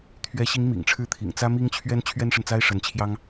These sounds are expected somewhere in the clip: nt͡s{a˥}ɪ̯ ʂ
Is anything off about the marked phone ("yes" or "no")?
no